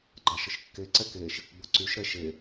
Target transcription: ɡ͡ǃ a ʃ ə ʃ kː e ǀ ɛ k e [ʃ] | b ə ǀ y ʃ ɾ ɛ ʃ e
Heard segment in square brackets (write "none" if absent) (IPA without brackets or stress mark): ʃ